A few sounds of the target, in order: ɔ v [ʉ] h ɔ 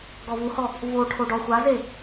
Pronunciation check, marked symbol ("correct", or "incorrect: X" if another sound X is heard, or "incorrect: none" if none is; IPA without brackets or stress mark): incorrect: u